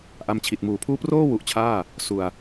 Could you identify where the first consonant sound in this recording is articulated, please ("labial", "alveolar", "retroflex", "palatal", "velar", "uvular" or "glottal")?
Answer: glottal